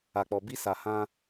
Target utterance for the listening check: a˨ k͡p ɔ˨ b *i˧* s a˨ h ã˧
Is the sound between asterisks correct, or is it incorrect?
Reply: correct